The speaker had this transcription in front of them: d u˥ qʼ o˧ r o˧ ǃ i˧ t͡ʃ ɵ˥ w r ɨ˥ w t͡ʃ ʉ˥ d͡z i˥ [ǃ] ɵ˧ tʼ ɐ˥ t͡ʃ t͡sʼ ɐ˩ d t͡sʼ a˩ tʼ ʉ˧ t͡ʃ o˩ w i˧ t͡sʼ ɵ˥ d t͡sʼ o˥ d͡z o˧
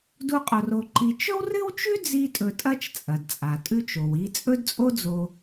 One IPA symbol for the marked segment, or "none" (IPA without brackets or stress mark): tʼ